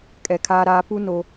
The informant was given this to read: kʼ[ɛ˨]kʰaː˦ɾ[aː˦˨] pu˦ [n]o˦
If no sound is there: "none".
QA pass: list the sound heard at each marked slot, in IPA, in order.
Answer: ɛ˨, aː˦, n

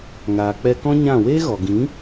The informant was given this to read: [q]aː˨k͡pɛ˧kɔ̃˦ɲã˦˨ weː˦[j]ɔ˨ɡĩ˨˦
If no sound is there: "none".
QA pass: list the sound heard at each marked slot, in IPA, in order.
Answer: ŋ, ɣ

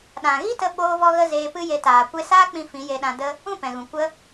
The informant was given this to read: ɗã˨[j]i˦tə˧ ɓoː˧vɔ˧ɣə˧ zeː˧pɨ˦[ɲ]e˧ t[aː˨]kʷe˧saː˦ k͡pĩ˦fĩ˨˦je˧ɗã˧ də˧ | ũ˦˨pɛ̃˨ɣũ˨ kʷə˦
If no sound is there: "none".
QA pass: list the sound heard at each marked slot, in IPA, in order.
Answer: ɣ, j, aː˨

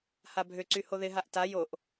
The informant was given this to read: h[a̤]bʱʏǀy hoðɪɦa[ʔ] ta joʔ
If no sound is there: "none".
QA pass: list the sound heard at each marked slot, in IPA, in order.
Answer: a, ʔ

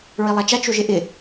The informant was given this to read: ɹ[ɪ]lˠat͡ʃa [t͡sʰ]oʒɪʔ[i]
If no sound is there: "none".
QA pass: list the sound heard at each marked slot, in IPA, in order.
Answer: i, t͡ʃ, ɪ

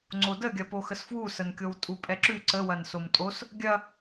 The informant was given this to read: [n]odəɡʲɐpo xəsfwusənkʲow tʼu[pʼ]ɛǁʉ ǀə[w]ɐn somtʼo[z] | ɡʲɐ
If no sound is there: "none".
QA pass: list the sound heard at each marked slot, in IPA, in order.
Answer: ŋ͡ǀ, pʼ, w, s

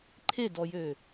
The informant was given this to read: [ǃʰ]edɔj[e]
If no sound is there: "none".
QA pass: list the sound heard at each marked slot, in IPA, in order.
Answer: ǃʰ, ø

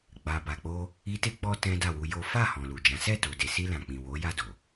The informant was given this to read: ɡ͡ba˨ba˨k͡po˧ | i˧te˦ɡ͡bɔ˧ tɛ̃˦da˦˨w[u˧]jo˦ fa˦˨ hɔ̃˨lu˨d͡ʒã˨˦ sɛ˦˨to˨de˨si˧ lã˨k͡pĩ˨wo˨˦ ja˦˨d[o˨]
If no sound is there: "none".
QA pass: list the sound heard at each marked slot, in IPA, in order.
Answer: u˧, o˨

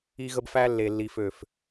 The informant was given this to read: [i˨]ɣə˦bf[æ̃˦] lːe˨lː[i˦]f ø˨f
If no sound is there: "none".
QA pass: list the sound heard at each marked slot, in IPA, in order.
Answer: i˦, æ˦, i˨

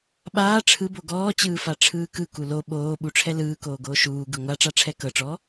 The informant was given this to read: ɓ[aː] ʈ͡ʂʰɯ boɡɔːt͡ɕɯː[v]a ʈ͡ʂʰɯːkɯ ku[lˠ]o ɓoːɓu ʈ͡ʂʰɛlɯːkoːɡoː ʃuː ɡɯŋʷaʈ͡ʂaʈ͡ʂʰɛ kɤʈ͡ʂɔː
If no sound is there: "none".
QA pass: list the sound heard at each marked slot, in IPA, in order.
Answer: aː, f, l

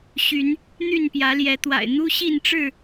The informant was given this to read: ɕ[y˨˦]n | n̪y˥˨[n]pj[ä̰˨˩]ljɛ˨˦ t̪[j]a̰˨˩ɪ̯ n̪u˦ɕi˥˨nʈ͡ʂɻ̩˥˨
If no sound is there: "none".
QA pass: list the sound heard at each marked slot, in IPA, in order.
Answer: y˨˦, n, ä˨˦, w

